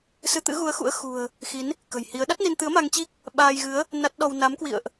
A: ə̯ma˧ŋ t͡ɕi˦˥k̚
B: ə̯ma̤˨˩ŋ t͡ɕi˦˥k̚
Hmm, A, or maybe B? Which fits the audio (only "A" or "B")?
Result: A